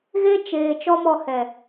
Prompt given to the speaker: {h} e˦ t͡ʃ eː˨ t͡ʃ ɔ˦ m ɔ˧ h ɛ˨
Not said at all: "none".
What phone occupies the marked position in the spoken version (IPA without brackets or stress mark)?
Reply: ɣ